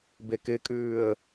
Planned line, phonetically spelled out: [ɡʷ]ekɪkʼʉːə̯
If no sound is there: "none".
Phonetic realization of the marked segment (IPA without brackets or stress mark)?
b